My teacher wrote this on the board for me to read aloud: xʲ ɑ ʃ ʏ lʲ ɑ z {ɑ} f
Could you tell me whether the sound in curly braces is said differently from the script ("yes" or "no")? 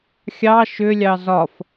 yes